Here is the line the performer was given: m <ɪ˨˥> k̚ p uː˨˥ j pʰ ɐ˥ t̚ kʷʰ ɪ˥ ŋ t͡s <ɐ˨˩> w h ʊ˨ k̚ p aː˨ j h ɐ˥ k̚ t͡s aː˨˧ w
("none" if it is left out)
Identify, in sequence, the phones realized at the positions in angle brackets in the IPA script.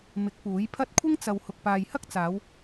ɪ˨˥, ɐ˨

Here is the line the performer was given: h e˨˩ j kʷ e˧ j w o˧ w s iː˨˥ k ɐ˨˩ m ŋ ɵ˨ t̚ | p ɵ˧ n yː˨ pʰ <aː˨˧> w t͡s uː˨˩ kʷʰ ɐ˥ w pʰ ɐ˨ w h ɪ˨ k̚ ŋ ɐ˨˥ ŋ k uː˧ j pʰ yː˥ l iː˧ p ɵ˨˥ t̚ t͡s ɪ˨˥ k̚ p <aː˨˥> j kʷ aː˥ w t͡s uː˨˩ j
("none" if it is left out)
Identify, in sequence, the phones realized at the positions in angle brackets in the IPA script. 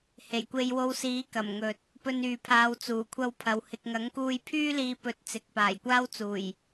aː˨˧, aː˨˩

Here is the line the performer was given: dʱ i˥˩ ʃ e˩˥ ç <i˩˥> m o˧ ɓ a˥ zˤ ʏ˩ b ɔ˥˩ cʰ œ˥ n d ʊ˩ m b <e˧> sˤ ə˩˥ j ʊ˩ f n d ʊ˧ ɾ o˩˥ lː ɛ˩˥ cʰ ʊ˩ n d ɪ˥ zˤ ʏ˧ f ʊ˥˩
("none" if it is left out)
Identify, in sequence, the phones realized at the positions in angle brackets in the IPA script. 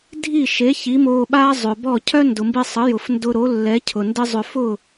i˩˥, i˧

